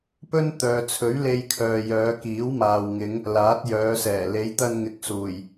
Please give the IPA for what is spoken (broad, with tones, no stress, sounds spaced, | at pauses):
p ɵ˥ n t̪ œː˨ t͡sʰ ɵ˨˥ ɥ l e˧ j kʰ œː˨ j œː˨˧ k iː˨˥ w m aː˨ w ŋ ɪ˨˧ ŋ | l aː˨˥ t̚ j œː˨˧ s ɛː˨˩ l e˨˧ j t̪ ɐ˧ n ŋ ɪ˨˥ k̚ s uː˨˩ j